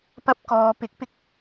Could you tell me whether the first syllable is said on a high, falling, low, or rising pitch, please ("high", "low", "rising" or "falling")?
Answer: high